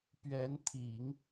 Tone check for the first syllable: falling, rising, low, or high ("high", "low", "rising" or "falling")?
rising